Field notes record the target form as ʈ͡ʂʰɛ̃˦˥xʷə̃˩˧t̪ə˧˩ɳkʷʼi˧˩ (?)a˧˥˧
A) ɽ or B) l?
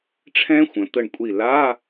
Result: B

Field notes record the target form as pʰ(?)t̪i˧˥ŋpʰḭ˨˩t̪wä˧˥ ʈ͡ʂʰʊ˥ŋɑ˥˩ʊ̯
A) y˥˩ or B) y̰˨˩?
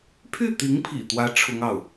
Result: A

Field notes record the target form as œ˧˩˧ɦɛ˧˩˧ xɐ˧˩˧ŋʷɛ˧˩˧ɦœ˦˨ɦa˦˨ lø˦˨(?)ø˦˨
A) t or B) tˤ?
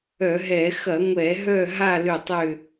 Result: B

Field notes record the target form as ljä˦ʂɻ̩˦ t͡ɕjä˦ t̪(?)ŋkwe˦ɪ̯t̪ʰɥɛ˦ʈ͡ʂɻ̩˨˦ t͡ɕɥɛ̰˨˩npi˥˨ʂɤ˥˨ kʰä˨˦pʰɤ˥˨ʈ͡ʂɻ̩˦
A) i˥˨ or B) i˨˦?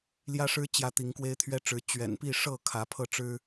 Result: B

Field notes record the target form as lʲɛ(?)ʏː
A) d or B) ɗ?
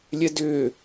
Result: A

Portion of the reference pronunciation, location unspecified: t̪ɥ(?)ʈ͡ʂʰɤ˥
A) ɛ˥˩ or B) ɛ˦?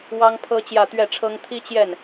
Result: A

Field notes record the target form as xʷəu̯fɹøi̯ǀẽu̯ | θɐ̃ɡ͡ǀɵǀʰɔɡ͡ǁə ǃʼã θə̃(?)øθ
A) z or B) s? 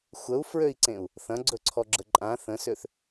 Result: B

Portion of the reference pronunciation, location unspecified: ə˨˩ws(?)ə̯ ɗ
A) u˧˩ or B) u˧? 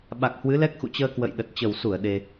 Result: A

